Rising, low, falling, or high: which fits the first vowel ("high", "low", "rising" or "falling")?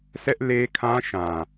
high